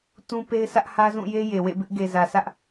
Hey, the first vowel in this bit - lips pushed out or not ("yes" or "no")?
yes